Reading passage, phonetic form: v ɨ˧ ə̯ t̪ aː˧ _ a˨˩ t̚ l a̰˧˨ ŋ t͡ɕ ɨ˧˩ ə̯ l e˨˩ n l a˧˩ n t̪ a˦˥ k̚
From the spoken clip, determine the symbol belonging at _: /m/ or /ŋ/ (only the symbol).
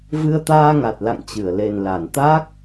ŋ